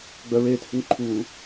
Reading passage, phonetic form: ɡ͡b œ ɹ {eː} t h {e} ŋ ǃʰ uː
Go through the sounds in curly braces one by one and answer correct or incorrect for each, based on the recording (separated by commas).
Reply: correct, incorrect